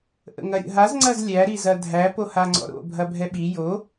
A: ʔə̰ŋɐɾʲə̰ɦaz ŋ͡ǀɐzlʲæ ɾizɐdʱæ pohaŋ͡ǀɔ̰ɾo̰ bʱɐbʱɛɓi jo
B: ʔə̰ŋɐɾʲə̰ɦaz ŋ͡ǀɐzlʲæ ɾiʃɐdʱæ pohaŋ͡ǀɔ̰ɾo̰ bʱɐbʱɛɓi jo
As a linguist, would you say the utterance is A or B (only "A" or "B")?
A